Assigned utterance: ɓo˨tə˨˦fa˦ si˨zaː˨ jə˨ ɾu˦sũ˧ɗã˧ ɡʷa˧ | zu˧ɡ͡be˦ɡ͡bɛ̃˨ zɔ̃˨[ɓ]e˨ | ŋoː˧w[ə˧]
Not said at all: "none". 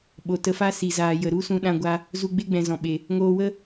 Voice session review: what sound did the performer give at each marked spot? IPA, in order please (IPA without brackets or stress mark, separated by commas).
ɓ, ə˦